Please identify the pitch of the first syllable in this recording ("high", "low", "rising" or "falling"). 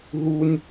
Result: high